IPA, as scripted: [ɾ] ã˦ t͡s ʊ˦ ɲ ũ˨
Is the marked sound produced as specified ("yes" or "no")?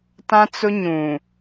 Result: no